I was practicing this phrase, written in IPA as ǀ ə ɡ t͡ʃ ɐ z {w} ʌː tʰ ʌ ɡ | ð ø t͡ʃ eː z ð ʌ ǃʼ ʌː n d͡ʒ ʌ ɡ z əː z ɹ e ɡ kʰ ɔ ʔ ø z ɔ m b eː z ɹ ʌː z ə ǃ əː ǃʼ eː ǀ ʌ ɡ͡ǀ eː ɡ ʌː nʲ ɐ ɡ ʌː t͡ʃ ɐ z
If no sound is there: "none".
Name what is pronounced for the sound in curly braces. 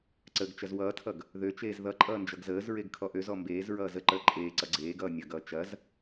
w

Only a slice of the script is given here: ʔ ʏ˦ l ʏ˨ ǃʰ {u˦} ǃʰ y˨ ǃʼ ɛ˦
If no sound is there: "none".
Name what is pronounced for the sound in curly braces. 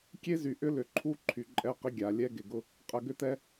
u˦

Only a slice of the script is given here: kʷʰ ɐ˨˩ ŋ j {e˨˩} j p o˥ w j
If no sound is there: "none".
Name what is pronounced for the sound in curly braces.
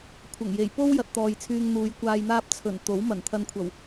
e˨˩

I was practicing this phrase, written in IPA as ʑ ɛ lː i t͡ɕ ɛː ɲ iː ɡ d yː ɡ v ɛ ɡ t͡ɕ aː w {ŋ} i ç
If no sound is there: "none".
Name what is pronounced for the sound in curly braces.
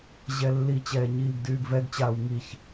ŋ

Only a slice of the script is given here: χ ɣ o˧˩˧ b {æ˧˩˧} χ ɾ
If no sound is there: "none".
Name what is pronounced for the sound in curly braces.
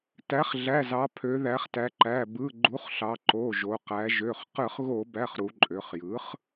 æ˩˧˩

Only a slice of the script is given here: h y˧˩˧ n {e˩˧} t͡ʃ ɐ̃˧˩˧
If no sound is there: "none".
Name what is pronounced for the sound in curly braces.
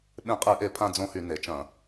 e˩˧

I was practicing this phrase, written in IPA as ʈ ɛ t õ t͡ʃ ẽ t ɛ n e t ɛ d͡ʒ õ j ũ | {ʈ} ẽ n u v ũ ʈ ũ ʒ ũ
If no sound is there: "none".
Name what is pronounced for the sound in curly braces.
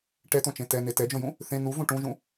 θ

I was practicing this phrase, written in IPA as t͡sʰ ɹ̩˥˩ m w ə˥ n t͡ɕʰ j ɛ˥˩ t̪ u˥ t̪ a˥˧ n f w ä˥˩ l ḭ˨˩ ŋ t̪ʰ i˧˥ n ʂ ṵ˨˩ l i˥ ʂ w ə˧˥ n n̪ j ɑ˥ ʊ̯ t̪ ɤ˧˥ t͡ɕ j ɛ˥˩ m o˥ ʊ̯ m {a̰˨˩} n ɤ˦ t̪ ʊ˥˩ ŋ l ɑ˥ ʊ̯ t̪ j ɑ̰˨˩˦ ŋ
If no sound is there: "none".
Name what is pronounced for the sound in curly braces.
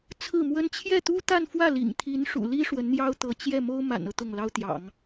a̰˨˩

